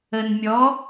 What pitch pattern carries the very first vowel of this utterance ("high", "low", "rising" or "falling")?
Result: low